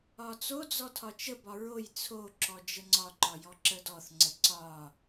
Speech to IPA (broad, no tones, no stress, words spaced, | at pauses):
ɒt͡sod͡zɔ tʰɒt͡ʃəbɒ ɹoj t͡sʰoǁɔ d͡ʒəŋ͡ǀɒǃɒ jɔǁədɔθŋ͡ǀə ǀɒ